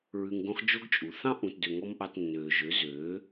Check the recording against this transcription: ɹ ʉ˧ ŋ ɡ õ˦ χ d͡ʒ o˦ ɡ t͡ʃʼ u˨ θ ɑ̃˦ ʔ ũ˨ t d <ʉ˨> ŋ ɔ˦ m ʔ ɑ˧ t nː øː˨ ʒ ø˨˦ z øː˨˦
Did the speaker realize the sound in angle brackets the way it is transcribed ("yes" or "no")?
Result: no